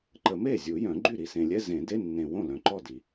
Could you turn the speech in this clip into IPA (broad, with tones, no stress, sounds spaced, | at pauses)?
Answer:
ǃ ə˨˩˦ m e˥˩ zʲ u˨˩˦ j œ̃˨˩˦ ɡ͡ǃ y˥˩ ɾ i˨ s ẽ˨ lʲ ɛ˧˥˧ z ẽ˨˩˦ d e˧˥˧ nː ẽ˨ w õ˥˩ l œ̃˨ ǃ ɔ˥˩ d i˨˩˦